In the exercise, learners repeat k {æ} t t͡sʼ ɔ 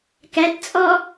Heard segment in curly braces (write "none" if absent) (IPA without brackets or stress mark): æ